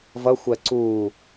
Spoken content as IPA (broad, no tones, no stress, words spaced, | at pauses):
vʌ xʷɜǀuː